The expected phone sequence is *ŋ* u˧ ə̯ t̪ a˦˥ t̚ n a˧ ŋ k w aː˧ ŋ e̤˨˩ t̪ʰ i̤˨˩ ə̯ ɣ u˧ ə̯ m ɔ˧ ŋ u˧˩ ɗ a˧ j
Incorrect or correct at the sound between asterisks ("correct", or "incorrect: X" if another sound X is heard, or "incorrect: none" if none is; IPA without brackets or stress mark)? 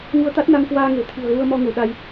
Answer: correct